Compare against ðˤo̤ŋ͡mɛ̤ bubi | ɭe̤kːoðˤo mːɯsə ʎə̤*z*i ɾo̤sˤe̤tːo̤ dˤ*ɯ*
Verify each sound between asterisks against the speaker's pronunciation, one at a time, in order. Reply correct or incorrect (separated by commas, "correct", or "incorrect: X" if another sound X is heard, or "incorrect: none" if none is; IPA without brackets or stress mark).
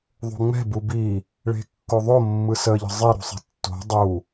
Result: incorrect: zˤ, incorrect: u